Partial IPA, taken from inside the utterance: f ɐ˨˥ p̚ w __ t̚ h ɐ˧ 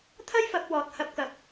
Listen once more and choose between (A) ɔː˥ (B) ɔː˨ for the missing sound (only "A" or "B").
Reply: B